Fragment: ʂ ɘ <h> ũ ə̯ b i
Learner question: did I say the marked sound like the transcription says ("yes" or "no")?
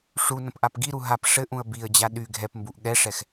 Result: no